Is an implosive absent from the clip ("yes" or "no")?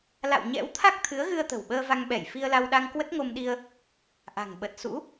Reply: no